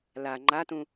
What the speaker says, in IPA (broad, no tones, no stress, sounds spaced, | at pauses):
l a ŋ͡ǃ a t ũ